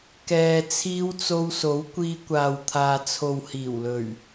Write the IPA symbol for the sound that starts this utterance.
k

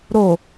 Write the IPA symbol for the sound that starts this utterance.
ɾ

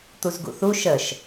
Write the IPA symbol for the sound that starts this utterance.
t̪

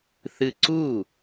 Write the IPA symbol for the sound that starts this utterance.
θ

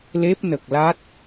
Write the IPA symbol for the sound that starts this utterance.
l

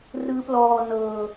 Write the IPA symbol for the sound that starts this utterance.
r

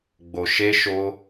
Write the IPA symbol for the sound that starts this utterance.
ɡ͡b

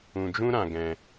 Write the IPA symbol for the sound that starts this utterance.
ũ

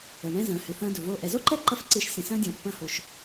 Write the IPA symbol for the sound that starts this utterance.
ə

